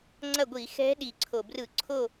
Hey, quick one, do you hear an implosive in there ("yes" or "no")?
yes